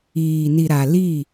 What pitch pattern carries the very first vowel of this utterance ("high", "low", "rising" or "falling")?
low